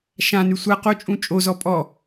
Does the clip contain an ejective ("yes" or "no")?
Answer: yes